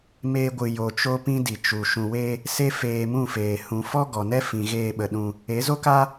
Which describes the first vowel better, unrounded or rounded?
unrounded